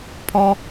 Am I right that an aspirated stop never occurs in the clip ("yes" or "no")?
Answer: no